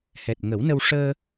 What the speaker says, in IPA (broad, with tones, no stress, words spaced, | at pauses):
hɛ˨˩t̚ŋə˨˩˦w nə˧w ʂəː˧